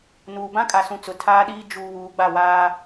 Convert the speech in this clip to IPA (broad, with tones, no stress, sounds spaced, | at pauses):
n uː˨ b ã˦ kʼ a˨ s ũ˨ t͡s ʊ˨ tʰ aː˦ ɗ iː˦ d͡ʒ u˨ β uː˨ ɡ͡b a˦˨ w aː˦